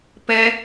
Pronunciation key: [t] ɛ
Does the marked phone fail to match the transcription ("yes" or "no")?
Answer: yes